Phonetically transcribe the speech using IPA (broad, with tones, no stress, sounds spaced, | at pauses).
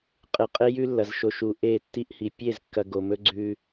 qʼ ɨ˨ qʼ e˦ j ʉ˦ lː ɐ˨ z ʃ o˨ ʃ u˨ ʔ e˦˨ tː i˦ ʔ h i˨ pʲ e˦˨ z kː ɐ˨ ɡ o˨ m ɵ˦ ɡ͡ǀ ʉ˦